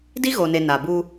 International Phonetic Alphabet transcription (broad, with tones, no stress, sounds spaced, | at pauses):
d i˦ ɣ o˨ n e˨ n a˨ b u˦